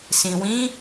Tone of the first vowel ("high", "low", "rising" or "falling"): low